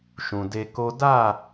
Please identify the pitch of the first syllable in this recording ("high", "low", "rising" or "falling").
low